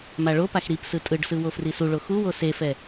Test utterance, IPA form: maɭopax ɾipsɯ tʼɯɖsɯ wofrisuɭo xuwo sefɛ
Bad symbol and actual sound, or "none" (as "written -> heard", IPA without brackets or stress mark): none